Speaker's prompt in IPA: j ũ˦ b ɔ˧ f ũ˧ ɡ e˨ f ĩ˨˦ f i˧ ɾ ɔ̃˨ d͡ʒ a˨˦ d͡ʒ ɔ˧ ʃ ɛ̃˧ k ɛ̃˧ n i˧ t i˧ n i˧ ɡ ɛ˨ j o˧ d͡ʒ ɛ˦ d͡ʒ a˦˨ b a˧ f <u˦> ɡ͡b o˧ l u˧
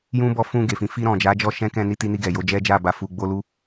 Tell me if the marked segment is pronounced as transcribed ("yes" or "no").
no